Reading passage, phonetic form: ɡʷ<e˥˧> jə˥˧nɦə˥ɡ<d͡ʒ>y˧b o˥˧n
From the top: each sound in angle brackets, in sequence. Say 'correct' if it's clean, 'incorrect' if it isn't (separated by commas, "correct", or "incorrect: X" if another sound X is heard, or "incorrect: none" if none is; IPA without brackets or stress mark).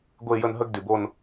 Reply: correct, incorrect: d